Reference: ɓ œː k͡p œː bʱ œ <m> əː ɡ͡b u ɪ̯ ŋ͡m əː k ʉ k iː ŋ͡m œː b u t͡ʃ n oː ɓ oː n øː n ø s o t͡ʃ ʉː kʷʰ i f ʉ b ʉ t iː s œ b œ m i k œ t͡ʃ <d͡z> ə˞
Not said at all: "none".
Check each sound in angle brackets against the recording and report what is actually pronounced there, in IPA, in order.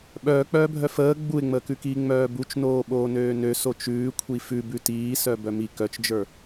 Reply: f, d͡ʒ

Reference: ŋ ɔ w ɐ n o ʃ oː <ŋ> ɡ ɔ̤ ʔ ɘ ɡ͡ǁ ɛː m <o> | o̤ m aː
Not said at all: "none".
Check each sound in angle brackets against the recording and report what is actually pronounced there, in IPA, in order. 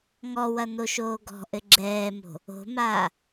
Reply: none, o̤

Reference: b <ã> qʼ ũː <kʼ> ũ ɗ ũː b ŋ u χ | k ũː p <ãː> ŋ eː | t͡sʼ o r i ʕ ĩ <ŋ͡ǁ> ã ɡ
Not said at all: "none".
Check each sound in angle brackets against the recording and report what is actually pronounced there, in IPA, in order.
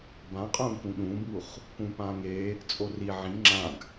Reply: ã, k, ãː, ŋ͡ǁ

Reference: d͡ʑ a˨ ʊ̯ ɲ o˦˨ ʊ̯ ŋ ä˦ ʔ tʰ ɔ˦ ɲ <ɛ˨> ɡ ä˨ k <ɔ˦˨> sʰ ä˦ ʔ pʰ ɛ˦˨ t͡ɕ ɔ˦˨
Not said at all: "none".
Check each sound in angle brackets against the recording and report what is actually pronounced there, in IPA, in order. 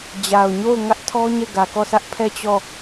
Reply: ɛ˦˨, ɔ˦˨

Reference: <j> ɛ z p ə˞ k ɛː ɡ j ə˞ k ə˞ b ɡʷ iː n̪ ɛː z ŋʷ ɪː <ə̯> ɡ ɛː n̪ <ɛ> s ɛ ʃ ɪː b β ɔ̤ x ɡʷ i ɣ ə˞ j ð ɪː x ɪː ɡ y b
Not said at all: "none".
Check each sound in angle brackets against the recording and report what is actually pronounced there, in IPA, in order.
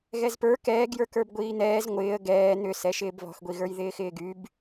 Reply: ɣ, ə̯, ʏ

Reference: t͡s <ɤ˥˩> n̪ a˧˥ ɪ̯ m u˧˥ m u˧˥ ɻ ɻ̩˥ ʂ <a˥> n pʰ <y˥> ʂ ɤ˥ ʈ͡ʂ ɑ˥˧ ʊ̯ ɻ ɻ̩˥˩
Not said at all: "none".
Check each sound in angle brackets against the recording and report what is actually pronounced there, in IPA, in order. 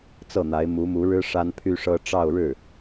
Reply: ɤ˥˩, a˥, y˥

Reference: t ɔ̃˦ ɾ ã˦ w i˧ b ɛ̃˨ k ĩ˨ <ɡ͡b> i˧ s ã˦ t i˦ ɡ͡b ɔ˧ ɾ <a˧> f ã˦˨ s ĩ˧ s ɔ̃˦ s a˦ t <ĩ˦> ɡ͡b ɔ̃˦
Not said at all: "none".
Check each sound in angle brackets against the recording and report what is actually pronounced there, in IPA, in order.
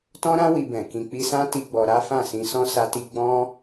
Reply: k͡p, a˦, i˦

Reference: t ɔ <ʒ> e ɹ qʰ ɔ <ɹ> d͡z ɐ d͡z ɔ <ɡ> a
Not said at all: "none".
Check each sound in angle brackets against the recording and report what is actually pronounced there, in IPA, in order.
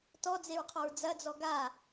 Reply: d͡z, ɹ, ɡ

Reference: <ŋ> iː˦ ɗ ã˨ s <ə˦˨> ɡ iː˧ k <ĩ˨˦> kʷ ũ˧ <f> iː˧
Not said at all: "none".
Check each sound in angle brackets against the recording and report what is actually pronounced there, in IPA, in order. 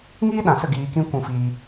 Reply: ŋ, ə˦˨, ĩ˦, f

